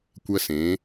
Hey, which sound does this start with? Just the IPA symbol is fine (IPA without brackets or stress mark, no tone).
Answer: kʷ